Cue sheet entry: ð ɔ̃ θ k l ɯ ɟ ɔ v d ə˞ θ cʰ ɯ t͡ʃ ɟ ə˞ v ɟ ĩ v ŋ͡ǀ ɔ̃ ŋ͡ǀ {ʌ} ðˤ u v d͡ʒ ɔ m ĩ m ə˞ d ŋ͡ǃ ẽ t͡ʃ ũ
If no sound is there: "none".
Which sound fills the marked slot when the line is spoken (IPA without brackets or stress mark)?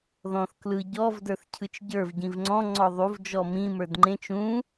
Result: ɔ